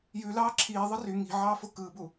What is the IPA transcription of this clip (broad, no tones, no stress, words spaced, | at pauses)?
jʉlɑː ǁʰiːðˤɯ ry ŋi̤ʕɑːfo kɯːbu